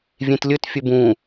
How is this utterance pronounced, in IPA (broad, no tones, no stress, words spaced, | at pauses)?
vʲẽtlʲɵt fʲɵbũː